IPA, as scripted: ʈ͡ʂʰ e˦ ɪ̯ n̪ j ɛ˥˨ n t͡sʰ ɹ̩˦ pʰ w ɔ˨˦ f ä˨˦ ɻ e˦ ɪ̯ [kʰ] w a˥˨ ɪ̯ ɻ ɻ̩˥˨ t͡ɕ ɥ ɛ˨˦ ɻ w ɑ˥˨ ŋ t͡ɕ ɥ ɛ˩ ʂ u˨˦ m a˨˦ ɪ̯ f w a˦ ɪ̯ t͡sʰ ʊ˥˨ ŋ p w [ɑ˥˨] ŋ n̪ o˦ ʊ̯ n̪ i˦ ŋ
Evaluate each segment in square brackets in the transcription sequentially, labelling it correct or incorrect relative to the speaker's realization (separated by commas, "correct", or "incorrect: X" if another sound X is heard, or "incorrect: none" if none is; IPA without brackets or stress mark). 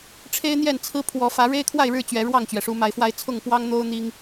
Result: correct, incorrect: ɑ˦